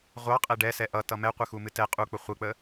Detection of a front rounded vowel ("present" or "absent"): absent